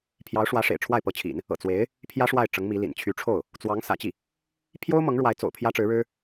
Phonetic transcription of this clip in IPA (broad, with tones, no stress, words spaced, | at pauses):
pʰjɑ˧˥ʊ̯ʂwä˧˥ ʂḛ˨˩ɪ̯ʈ͡ʂʰwa˥˩ɪ̯pɤ˧˥t͡ɕʰḭ˨˩˦n | ɤ̰˨˩ t͡swe˧˥ɪ̯ | pʰjä˥ʂwa˥˩ɪ̯ ʈ͡ʂɤ˧˥ŋmi˧˥lḭ˨˩n t͡ɕʰy˧˥ʈ͡ʂʰo˥˩ʊ̯ | t͡swɑ˧˥ŋ sä̰˨˩t͡ɕi˥˩ | pʰjo˥ʊ̯ mɤ˧˥ŋɻwa˧˥ɪ̯t͡so̰˨˩ʊ̯ pʰjä˥ʈ͡ʂɻ̩˧˥ɻɻ̩˥